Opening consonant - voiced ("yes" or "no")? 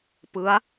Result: no